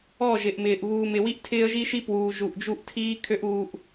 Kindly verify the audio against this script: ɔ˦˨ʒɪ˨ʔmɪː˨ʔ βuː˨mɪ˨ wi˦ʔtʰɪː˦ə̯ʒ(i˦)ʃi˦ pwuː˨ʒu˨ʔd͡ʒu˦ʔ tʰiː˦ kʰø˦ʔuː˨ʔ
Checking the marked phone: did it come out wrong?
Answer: no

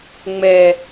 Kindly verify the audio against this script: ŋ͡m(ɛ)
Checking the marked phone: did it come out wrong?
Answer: no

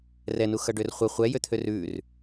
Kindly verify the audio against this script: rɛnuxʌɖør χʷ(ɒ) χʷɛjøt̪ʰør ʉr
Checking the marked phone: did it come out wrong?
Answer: yes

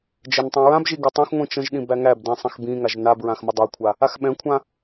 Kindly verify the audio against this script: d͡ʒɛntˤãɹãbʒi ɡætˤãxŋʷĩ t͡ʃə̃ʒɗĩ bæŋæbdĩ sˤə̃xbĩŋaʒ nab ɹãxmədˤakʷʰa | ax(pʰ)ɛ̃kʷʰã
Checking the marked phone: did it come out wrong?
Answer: yes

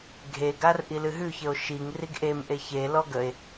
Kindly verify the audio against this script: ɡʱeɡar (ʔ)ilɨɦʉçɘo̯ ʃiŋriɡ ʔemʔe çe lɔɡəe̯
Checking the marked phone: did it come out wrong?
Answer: no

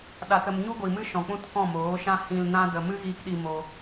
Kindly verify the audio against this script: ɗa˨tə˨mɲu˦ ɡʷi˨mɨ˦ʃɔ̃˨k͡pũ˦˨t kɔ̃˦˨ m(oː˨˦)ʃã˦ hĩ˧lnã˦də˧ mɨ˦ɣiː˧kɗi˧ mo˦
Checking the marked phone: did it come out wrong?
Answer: no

